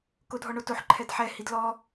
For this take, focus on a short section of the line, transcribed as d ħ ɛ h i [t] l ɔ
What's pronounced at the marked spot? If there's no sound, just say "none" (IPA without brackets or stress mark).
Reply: d